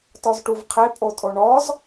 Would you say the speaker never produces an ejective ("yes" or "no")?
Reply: no